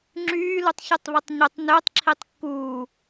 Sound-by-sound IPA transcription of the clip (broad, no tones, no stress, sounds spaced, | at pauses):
ŋ͡ǁ yː l u tˤ ç ɯ tˤ β i tˤ ɲ o tˤ n ø tˤ ǁʰ i tˤ kː uː